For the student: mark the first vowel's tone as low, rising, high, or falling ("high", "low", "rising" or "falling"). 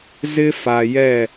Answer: high